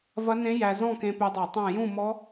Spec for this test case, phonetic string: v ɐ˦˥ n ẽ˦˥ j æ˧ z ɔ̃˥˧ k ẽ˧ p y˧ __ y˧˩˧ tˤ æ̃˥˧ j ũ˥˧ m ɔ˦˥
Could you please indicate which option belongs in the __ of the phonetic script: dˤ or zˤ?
dˤ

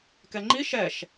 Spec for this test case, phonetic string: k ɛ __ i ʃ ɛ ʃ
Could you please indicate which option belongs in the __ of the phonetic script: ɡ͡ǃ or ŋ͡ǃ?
ŋ͡ǃ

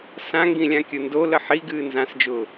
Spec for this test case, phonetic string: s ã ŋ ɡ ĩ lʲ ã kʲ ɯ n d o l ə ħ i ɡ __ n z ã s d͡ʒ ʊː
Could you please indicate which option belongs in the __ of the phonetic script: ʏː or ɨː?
ɨː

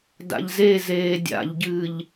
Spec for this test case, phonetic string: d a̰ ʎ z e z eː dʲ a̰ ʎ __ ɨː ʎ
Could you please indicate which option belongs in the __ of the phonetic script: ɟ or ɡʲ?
ɟ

